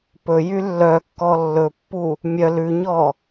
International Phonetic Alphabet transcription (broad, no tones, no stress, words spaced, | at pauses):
pɵjy lːœkːɔ lːɵpːu | mʲœ lʉɲɔ